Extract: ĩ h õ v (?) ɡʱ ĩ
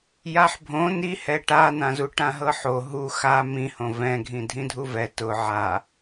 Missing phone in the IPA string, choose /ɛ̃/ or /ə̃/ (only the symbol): ɛ̃